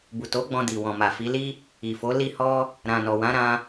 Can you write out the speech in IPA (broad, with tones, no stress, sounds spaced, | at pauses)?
b u˨ t o˨˦ ɡ͡b ɔ̃˧ d i˨ w ɔ̃˨ m a˨ f i˨˦ l i˦ | i˨ f o˨˦ l i˧ h ɔ˧ | ɾ ã˨ n ɔ˨ w ã˨˦ ɾ ã˧